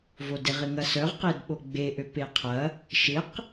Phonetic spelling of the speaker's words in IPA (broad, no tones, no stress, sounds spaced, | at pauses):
v o d ɪ ʁ ɪ ŋ ɐ s œ ʁ q e d ɓ o ɡ͡b e ʔ ø p e qʰ ɐ | ʃ ɪ q